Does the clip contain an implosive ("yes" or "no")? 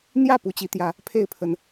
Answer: no